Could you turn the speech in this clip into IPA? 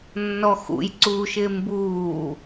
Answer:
nːɔxṵj ǀuːʃɪːmbuː

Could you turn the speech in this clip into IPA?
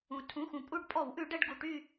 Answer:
ũ˩ tʰũ˩˧˩xũ˩ pʼu˦˨ɖ pʼɔ˧˩˧wʔʉ˧˩˧ ɖɛ˦˨ɖ ɡu˩˧˩ʈy˦˨

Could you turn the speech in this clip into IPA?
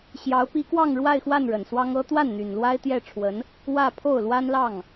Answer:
ɕjɑ˧˥ʊ̯pi˧˥kwɑ˥˧ŋ ɻwa˥˧ɪ̯xwa˥˩n ɻə˨˩nswɑ˥ŋɤ˥ t̪wa˥˩nn̪y˨˩n lwa˥ɪ̯t̪jɛ˥˩ʈ͡ʂʰwə˧˥n | wä˥˧ pʰo˥˩ʊ̯lwa˥nlɑ˥˩ŋ

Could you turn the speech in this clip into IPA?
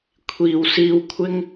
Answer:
kʷʰiː˨wsiː˧w kʷʰɪ˥ŋ

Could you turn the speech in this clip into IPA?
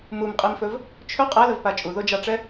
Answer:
mumqʼimfɵv | t͡ʃʰɵ qʼɛləvpa t͡ʃʼuðod͡ʒɑʈ͡ʂɛ

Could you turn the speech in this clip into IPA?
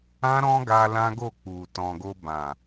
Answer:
ã˦ɾɔ̃˦ɡa˧ lã˦ɡo˦˨k͡pu˨ tɔ̃˨ɡo˧ bã˨

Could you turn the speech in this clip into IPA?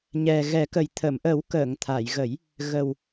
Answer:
ɲɛ˨˩ɣɛ˨˩˦kə˨˩j t̪ʰə˨˩˨mʔə˨˩˦w kəː˨˩˨ŋt̪ʰa˨˩˨jɣə˨˩˦j | ɣə˨˩w

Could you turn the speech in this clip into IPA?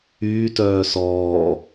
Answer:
yːtœː sɔː

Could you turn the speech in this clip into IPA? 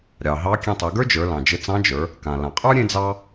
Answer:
ɾʲɑ˩ɦɑ˧˥ kʲẽ˧tˤe˩˧ɡə˞˥d͡ʒə˞˩˧ lɑ̃˩d͡ʒɘ˧t͡sɑ̃˧˥d͡ʒə˞˩˧ | kã˩lã˩qʼə˞˥ ɾʲẽ˥d͡zɑ˥

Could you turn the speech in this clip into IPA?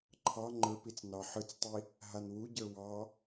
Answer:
ǃʰɑ ŋ͡ǃə˞pit͡s nɑħɯt͡stˤi | ɦanwuɟə˞ wɑ

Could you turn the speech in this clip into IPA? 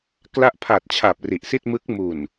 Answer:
kla˦˥ʔpʰa˨˩t̚t͡ɕʰa˨˩p̚ ri˨˩ʔsi˥˩t̚mɯ˦˥k̚ mu˨˩n

